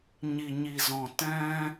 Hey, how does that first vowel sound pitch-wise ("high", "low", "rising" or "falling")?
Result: low